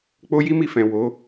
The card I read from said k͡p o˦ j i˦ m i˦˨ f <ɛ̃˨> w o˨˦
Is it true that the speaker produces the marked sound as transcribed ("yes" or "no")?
yes